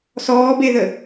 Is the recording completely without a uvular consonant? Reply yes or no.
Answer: yes